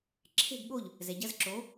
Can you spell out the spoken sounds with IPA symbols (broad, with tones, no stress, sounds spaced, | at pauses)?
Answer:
ǁʰ e̤˥˨ ɡ ɠ o˥˨ ʎ | z ɛ˨ ɟ ɐ˧˥˧ z ǁ o˨˥